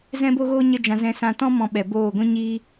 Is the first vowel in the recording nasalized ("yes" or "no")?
yes